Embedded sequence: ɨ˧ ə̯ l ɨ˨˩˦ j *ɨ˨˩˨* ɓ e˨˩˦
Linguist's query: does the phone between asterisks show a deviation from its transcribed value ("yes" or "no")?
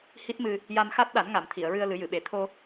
no